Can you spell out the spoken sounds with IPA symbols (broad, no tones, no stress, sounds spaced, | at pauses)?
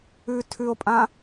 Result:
ʉ tʰ ʉ o̯ pʼ ã